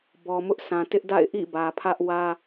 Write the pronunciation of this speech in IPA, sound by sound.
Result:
b ɔ˨ m ʊ˦ ʔ sʰ ã˨ t ɪ˦ ʔ d a̰˦˨ ɪ̯ ʔ ḭ˦˨ b ä˨ pʰ ä˦ ʔ w ä˦

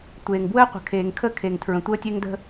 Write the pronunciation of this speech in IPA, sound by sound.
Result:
tʷ eː˨ ŋ b w əː˦ qʷ ə̤˨ kʰ eː˨ ŋ kʰ ə˦˨ kʰ e˨ ŋ tʰ ɹ ə̃˨ tʷ əː˦ tʲ e˦ ŋ d ə̤˦

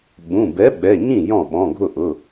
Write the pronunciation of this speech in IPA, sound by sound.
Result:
ɓ ũ˩˧˩ b ɛ˨˥ ɓ ɛ˩˧˩ ɲ ĩ˥˩ j ɔ̃˥˩ ɓ ɔ̃˩˧˩ ɡʱ ʊ˥˩ ʔ ʊ˩˧˩

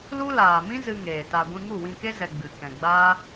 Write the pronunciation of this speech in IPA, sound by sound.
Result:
l u˦ l aː˨ m ĩ˦ z ɨ˧ ŋ eː˨ t a˧ ɡʷ ĩ˧ ŋ u˦˨ w ĩ˧ k e˦ z ɛ˧ ɡ͡b ɨ˨ k ɛ̃˨ ɡ͡b aː˦

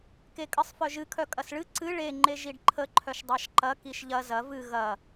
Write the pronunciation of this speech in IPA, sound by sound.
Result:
k e kʼ ɨ sˤ f œ ʒ ɨ kʰ œ kʼ ɐ s ɭ ɨ ǀ ɨ ɭ e ŋ͡ǃ e ʒ i ɖ ǃʰ ə ǃʰ œ ʃ dˤ ɑ ʃ ǃ ɐ k i ʃ ʎ ɐ z ɐ v ɨ ɣ ɐ

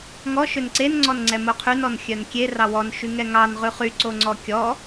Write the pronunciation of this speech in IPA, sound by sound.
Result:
ŋ ɔ ʃ ø n ǀ e n ŋ͡ǀ ɔ n ŋ͡ǀ ɛ m o qʰ y n ɔ n xʲ œ n kʲ e r ɑ w ɔ n ʃ y ŋ ɛ ŋ ɑ n ʁ ʉ χ y ǀ o ŋ͡ǀ ɔ kʲ ɔ

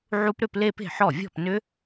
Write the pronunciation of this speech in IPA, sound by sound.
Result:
ʕ u˦˥ p ɾ ʏ˥˧ p l e˥˧ p e̤˥˩ ħ ɔ˥˩ vʲ ɔ̤˥˩ p n ʏ˦˥

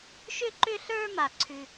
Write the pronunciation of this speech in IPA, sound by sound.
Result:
ʃ ʏ˦ ǃ ʏ˦ ɬ ə˞˦ m a˦˨ ǀʰ ʉ˦

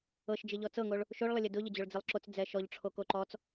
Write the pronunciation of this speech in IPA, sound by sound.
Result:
ɤ ʃ d͡ʒ ɪ ʎ ɔ t͡s ɤ ŋ o ɭ | ʃ o ɭ lˠ ə lʲ ɛ d ʊ ʎ ə d͡ʑ o ɭ d͡z ɪ lˠ ǁ o t͡s d͡z ɛ ʃ ɔ ʎ ʈ͡ʂʰ o k o ǃ ɔ t͡s

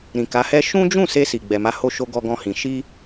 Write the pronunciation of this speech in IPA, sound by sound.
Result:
ɾ ĩ˨ k a˨˦ h ɛ˦ ʃ ũ˦ d͡ʒ ũ˦˨ s e˧ s i˨ ɡ͡b ɛ˨ m a˧ h o˧ ʃ o˧ ɡ ɔ˧ ɡ ɔ̃˧ h ĩ˨ ʃ i˧

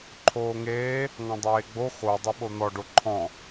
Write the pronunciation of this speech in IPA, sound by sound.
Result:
ǃʰ oː ŋ eː | ŋ ɔ̃ dˤ eː ɡ͡b o x o dˤ e ɓ o n̪ ɔ ɖ o ǃʰ ɔ̃

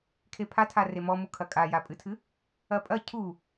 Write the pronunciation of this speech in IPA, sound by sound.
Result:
kʰ e pʰ a tʰ a r e m ɔ m u kʰ ɐ kʼ a j a pʼ ɨ tʰ ɨ | ɐ pʼ ɐ cʰ u

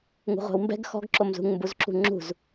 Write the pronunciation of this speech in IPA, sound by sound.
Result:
ŋ ṳ ʁʷ ɛ̤ w m b ɛ̤ ɡ x ɔ̤ ɡ ǁ o m z ṳ ŋ m b u z ǁ ṳ ŋ͡ǁ ṳ z

